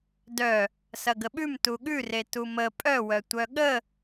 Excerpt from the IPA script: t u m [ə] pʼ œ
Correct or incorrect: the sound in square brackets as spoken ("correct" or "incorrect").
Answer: correct